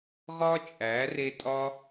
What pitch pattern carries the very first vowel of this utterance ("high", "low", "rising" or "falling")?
high